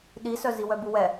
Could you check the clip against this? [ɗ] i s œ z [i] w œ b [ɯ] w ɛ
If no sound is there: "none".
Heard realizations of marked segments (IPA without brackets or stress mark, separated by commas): ɗ, i, u